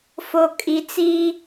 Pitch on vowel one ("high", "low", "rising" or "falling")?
low